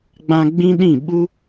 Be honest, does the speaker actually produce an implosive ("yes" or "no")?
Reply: yes